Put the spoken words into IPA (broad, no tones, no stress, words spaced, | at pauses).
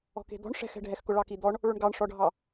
ɔ̤ke̤d̪ɔ̤ɳ ʂɛ̤xɛ̤ɖʱɛxkʊ ɭɑkid̪ɔɳ | ɭʊɳɡɑɳʂɔɖʱɑ